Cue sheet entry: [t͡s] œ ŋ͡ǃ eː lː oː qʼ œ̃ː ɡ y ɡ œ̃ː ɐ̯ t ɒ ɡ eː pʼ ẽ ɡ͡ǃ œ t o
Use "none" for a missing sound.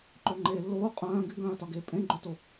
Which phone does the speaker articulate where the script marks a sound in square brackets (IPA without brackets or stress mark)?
ǃ